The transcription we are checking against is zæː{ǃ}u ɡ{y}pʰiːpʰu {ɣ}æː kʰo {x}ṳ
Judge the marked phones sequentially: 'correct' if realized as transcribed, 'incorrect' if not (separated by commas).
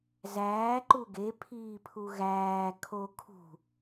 correct, incorrect, correct, incorrect